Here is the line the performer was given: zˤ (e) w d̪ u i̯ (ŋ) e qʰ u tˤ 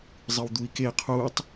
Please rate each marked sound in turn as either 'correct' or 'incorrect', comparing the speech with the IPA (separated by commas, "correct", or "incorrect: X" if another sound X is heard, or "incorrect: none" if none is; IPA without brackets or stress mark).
incorrect: ɨ, incorrect: k